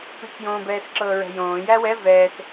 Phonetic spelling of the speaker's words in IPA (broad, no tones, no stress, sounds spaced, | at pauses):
p i k j õː b ɛː s ǁ ɤː ɹ ɛ̤ j õː j æ w ɛ v ɛː s